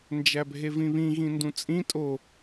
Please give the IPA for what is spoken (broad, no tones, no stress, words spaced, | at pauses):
nd͡ʒæbʱevĩβĩ ɣĩndũt͡sʼĩ tʼo